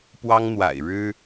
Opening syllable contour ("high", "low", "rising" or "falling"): high